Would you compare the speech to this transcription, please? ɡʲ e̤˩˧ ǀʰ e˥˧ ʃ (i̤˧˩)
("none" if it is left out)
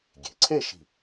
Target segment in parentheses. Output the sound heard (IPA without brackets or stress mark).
i̤˧˩